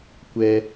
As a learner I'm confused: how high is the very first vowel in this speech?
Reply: mid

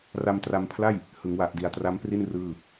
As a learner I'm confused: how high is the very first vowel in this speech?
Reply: low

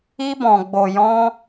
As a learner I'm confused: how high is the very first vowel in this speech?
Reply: high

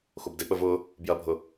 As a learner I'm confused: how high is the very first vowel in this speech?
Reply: mid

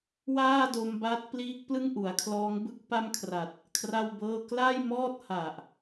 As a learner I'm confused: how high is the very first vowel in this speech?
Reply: low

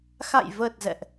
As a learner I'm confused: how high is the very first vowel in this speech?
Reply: low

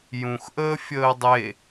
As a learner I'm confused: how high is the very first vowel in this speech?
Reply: high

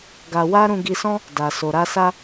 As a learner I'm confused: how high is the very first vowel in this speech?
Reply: low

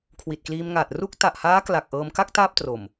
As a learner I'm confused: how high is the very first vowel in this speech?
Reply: high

